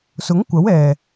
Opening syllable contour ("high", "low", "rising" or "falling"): rising